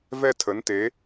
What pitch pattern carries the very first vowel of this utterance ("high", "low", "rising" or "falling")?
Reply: falling